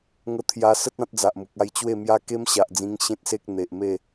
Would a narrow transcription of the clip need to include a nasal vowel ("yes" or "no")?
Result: yes